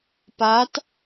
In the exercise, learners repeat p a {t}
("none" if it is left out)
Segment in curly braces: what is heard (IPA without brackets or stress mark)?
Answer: t